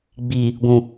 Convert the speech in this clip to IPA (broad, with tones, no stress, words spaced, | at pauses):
ɡ͡bi˨ | ɡʷũ˨